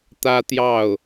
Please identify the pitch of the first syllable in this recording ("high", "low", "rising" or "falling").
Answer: high